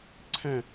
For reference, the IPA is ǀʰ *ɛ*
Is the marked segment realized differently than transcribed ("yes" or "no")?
yes